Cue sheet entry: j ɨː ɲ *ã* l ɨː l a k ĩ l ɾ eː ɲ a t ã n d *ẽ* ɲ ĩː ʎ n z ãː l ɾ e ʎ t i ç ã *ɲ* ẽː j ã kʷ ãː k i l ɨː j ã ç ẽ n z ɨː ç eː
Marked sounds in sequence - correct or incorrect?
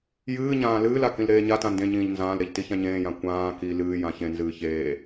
incorrect, correct, correct

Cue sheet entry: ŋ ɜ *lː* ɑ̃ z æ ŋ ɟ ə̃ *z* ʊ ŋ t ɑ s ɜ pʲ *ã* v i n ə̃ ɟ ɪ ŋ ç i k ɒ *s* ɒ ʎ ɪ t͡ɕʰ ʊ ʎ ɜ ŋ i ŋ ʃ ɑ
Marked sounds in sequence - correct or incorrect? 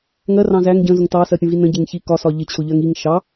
incorrect, correct, incorrect, correct

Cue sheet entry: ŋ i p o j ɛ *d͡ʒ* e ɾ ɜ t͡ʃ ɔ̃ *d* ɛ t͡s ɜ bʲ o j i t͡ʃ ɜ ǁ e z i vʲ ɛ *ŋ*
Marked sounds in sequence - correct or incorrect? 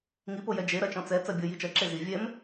correct, incorrect, incorrect

